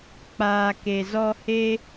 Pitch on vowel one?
low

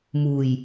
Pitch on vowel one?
low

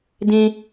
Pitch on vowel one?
high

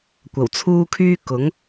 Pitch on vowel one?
low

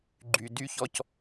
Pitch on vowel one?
low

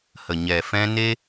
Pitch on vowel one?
low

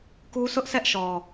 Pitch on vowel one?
high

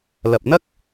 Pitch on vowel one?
low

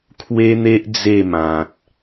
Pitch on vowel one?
high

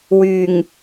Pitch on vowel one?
low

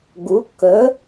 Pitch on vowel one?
rising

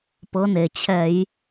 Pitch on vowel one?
rising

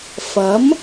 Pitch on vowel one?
rising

